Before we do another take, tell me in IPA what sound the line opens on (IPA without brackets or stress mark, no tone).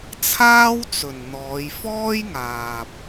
t͡sʰ